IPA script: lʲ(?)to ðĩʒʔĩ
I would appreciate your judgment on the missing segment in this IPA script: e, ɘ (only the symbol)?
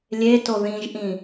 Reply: e